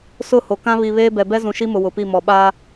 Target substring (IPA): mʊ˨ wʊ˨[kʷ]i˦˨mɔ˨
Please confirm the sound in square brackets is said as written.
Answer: no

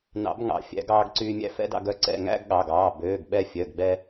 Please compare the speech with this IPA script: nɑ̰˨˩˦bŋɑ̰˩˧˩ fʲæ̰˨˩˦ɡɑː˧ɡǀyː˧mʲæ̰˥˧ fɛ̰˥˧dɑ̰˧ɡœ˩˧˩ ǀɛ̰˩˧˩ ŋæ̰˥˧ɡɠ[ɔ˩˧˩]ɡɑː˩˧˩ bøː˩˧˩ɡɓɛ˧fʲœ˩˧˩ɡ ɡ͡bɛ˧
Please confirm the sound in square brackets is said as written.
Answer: no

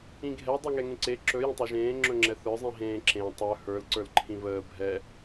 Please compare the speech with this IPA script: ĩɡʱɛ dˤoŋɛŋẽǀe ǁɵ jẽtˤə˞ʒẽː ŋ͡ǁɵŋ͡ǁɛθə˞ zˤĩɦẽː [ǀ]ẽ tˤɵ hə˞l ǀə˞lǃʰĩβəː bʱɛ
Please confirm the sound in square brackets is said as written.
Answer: no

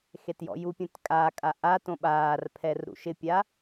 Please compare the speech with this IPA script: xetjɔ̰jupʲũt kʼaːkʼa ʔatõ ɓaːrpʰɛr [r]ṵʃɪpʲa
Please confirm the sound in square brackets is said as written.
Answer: no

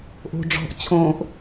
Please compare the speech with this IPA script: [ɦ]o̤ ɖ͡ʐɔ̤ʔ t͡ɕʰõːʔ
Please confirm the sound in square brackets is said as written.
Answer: no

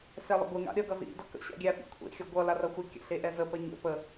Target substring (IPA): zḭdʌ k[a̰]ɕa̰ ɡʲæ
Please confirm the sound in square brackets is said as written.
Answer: no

